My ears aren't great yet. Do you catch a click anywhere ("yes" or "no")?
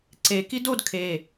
yes